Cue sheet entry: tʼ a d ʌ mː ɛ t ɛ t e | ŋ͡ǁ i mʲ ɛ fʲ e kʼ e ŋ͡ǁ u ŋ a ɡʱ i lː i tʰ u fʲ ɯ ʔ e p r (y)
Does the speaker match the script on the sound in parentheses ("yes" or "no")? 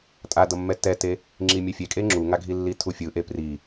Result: no